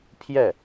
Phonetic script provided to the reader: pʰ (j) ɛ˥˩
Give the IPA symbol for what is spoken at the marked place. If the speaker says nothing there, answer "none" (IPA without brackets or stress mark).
j